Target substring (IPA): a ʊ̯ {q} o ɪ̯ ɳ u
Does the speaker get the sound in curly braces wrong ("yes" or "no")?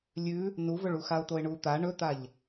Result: yes